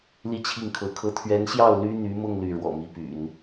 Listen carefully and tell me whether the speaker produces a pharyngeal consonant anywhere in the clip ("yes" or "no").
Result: no